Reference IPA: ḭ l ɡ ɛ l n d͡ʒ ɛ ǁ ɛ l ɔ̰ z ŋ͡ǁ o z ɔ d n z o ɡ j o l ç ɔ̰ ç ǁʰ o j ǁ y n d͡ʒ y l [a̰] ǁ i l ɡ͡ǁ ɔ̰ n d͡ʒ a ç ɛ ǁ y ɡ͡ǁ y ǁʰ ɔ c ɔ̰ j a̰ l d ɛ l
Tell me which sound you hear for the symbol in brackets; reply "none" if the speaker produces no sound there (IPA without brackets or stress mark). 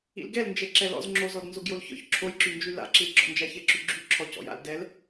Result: a̰